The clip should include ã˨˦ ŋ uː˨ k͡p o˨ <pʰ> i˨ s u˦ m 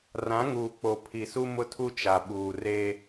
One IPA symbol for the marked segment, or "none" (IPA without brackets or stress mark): pʰ